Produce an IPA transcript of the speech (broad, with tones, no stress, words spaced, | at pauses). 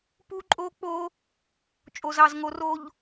pu˦ǃʼo˦k͡po˦ | t͡ʃʼo˨zɑ˨zŋo˨ro˨ʎ